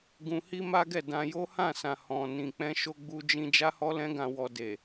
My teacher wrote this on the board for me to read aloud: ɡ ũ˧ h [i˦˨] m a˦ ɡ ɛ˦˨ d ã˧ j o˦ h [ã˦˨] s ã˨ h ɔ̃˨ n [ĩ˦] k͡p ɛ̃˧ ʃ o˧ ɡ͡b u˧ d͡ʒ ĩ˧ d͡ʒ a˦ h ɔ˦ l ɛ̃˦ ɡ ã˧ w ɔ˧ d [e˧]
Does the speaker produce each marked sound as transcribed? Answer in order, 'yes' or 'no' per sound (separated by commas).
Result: no, yes, no, no